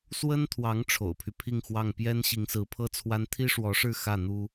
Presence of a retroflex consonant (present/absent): present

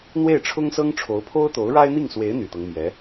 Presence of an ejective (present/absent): absent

